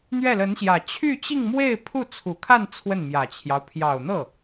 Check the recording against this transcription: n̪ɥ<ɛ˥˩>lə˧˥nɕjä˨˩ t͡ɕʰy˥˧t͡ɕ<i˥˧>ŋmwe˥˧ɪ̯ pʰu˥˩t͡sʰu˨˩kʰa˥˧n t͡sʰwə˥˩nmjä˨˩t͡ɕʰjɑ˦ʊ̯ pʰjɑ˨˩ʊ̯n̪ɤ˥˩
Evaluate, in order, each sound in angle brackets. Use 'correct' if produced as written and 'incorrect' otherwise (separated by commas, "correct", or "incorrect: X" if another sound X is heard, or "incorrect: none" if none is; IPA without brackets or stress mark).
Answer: correct, correct